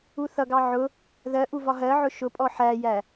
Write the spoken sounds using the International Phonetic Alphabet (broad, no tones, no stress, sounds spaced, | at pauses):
u θ ʌ ɡ ɑ ʕ ʊ | ð ɜ ʔ u v ɒ ɦ ɜ ʕ ʊ ʃ ʊ pʼ ɔ ħ æ j æ